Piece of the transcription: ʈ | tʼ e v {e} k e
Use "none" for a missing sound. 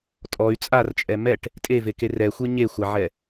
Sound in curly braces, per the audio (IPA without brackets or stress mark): e